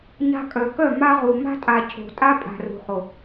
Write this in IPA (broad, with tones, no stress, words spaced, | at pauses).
ɲa̤˧kʼœ˨kœ˦˨ ma˧ʁu˨ ma̤˧tʼa˨ cʰo̤˨tʼa˧ pʼa̤˨rṳ˨χo˨